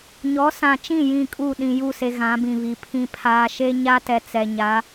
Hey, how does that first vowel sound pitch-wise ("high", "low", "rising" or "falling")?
rising